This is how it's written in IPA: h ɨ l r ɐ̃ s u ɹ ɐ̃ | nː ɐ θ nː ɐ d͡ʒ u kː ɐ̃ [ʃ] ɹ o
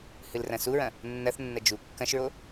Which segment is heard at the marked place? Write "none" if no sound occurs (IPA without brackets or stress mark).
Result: ʃ